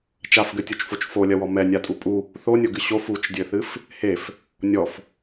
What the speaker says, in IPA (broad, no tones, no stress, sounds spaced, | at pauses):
t͡ʃ a f ɡ ɘ tʲ u t͡ʃ f o t͡ʃ f o lʲ ɐ w ɔ m ɛ nʲ a tʼ u pʼ u | θ o nʲ o ɡ ɨ ɕ o f u t͡ʃ dʲ ɘ θ ɨ f | h e f | nʲ ɔ f